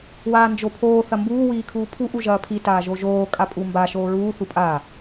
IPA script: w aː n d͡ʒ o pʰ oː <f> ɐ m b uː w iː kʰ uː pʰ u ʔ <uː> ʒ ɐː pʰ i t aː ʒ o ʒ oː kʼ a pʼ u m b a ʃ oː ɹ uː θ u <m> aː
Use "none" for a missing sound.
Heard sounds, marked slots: θ, u, pʼ

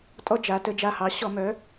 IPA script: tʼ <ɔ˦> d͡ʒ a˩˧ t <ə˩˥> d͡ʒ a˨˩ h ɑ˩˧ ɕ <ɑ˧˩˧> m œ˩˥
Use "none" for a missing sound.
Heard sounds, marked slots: ɔ˦, ə˩˧, ɔ˧˩˧

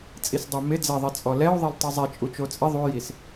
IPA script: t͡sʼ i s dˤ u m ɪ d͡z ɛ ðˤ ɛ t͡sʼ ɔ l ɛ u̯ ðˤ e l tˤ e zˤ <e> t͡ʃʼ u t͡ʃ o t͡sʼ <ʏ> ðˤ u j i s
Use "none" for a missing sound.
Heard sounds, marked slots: e, ɪ

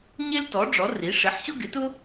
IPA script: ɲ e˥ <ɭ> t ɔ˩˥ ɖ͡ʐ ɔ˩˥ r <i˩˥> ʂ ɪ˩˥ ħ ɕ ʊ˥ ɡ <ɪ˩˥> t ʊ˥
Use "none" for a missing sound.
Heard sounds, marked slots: l, i˩˥, ɪ˩˥

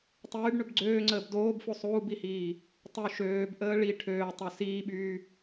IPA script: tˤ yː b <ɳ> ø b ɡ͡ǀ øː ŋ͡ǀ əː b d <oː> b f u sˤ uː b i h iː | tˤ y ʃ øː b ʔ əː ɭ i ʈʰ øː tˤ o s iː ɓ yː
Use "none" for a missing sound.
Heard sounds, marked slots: ɳ, oː

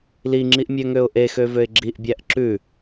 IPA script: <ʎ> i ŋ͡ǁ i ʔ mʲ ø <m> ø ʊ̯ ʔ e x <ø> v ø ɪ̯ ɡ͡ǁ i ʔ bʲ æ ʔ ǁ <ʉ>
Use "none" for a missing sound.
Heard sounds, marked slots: l, ŋ, ø, ʉ

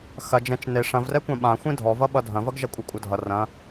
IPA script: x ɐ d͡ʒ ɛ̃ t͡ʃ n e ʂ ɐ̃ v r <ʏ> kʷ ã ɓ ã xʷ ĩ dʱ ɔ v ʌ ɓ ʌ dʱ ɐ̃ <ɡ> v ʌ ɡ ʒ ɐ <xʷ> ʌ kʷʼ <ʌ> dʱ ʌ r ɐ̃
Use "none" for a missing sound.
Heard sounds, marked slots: ɛ, none, kʷʼ, ʌ

